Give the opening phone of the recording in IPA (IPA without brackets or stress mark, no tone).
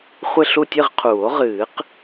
χʷ